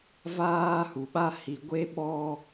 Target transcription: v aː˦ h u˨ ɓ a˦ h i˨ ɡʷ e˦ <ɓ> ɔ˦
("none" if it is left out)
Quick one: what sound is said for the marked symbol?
ɓ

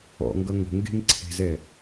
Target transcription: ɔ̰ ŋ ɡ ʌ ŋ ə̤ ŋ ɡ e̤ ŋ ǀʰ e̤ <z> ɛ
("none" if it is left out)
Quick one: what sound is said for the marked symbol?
z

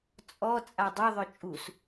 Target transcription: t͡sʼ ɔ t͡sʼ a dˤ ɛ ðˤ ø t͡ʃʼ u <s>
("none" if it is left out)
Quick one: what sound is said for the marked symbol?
s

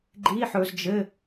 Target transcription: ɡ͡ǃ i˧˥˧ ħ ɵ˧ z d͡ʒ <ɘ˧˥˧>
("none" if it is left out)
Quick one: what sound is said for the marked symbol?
ɘ˧˥˧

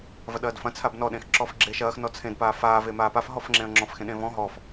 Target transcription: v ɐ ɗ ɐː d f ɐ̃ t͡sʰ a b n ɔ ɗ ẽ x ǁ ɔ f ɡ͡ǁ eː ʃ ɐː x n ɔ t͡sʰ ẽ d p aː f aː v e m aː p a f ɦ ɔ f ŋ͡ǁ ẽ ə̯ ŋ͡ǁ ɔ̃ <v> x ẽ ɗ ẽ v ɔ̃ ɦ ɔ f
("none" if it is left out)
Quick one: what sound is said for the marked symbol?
f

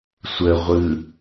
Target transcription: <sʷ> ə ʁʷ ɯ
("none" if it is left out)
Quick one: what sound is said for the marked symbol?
sʷ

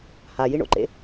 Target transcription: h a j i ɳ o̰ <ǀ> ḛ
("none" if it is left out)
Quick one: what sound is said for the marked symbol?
ǃ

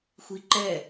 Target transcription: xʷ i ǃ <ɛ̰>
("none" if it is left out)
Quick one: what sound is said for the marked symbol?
ɛ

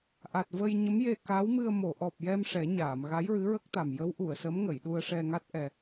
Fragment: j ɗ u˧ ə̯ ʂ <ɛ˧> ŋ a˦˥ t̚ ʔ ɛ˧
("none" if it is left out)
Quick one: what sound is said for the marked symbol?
ɛ˧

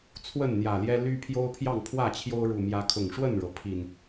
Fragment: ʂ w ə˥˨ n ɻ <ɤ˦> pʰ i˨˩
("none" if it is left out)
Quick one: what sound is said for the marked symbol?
ɤ˩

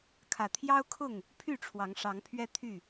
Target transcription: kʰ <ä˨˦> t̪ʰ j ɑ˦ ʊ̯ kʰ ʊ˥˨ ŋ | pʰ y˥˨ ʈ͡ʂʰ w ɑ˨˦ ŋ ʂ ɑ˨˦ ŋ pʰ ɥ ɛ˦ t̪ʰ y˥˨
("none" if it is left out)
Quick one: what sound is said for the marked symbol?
ä˨˩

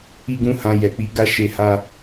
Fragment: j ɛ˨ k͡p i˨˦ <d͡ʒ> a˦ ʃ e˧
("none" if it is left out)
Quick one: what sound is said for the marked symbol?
ɡ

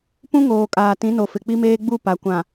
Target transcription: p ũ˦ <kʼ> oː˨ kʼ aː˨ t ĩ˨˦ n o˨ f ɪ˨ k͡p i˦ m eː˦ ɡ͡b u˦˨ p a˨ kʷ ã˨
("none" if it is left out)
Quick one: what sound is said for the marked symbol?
ŋ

